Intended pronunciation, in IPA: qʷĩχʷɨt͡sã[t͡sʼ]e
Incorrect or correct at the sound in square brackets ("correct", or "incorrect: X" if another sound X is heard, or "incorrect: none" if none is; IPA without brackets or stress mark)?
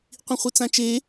incorrect: t͡ʃ